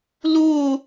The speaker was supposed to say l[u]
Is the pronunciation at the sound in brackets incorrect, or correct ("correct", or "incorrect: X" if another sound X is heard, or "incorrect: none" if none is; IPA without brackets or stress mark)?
correct